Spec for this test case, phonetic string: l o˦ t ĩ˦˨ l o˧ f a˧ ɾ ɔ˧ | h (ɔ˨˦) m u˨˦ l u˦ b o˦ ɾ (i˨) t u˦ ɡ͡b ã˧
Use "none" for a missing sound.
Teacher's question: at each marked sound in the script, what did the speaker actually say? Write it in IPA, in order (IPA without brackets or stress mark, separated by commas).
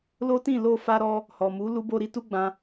ɔ˨, i˧